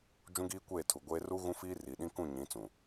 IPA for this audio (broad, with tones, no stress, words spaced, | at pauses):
d͡ʒũ˦ɡiː˦kʷeː˦˨ tʰu˨ɡʷeː˦ ru˦ ɣũ˦fiː˦ ri˨ɗĩ˦ kũ˦˨ɲĩ˨˦t͡sũ˨